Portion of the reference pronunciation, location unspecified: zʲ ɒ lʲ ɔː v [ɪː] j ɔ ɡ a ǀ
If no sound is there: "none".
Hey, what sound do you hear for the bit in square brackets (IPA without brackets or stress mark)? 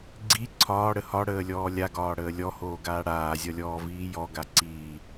iː